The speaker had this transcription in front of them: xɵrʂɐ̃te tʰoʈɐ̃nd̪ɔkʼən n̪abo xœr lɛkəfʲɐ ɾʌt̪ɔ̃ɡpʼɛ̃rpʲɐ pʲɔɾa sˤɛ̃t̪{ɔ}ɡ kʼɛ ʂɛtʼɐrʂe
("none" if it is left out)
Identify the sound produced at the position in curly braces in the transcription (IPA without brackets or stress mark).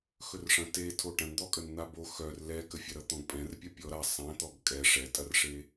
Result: ɔ